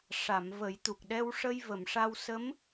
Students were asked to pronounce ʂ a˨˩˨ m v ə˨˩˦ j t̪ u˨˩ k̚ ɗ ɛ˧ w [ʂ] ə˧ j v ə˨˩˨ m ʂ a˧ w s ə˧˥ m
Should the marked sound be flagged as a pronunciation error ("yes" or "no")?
no